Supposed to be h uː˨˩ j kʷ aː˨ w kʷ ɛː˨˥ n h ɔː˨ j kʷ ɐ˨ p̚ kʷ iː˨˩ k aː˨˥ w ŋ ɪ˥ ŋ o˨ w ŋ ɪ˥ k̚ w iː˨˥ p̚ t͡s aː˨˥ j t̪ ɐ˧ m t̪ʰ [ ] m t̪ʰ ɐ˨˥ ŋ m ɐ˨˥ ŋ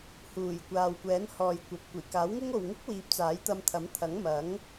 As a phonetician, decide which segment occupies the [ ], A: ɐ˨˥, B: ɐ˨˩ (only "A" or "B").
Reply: A